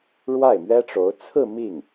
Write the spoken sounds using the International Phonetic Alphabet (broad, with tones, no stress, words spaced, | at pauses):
ɻwa˥˩ɪ̯mɥɛ˥ʈ͡ʂo˧˥ʊ̯ t͡sʰɹ̩˥˧ mi˥˩ŋ